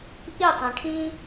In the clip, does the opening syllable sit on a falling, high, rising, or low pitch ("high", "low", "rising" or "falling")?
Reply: falling